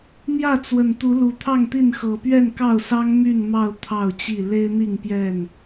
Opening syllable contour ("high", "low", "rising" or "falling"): falling